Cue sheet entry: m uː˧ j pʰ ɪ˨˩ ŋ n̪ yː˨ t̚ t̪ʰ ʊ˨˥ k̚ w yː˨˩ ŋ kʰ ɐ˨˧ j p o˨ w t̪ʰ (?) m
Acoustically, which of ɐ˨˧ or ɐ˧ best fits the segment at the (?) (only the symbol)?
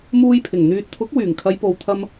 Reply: ɐ˧